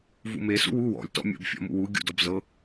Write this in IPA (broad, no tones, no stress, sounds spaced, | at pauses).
v ṵ m e s ṵ w u w ɔ̰ lʲ t ɔ̰ mʲ o̰ b fʲ ɔ̰ m ṵ w u ɡʲ ṵ d ɔ b z ɤ